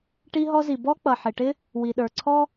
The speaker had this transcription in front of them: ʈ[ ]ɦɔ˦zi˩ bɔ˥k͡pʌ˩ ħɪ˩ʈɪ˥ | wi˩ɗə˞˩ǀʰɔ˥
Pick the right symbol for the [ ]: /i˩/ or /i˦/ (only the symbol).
i˦